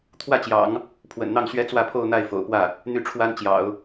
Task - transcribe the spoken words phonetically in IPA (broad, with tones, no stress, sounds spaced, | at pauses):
t̪ʰ w ä˥˩ t͡ɕ j ɑ̰˨˩˦ ŋ | pʰ w ə̰˨˩ n n̪ ɑ˥˩ ŋ ɕ ɥ ɛ˥ t͡s w ä˥˧ pʰ o˥˧ ʊ̯ n̪ a˥˩ ɪ̯ f o̰˨˩ ʊ̯ p w ä˥˩ | n̪ y˥˩ ʈ͡ʂʰ w a˥ n t͡ɕ j ɑ̰˨˩˦ ʊ̯